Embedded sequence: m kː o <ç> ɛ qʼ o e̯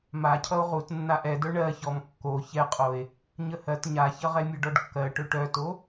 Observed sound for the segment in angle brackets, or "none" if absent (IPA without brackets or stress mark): ç